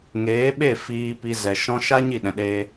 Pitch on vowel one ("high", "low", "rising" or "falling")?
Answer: rising